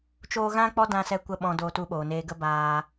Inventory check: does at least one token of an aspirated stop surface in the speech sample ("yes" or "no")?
no